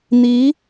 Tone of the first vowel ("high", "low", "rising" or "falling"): rising